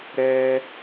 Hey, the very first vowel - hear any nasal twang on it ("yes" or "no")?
no